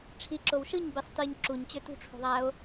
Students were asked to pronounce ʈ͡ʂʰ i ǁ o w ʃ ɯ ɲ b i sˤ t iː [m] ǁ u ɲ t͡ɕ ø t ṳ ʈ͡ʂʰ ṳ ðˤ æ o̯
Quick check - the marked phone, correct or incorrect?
incorrect